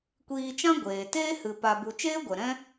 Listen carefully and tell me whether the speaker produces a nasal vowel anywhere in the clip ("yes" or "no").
yes